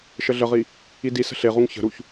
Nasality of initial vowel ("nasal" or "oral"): oral